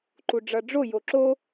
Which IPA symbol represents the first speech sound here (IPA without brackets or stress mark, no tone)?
ǃ